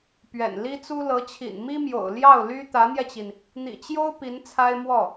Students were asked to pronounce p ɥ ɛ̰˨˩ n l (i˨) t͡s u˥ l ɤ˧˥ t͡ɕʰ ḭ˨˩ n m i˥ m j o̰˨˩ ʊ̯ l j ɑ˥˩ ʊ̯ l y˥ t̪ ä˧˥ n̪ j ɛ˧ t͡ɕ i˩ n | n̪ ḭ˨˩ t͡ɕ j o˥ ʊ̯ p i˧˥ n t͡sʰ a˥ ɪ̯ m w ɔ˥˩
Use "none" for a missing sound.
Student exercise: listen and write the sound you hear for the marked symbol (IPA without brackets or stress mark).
i˥